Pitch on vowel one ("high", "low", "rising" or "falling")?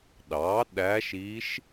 rising